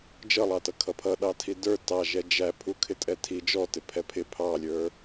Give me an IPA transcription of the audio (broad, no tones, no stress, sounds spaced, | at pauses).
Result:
d͡ʒ ʌ lˠ ɑ t ʌ kʰ ʌ pʰ ʌ ɗ ɑ tʰ i d ə˞ t ɑ ʒ ɛ d͡ʒ æ pʰ u kʰ ɪ tʼ ɛ tʰ i d͡ʒ ɔ t ɪ pʰ ɛ pʰ ɪ pʰ ɑ lʲ ə˞